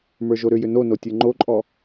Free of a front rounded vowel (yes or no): no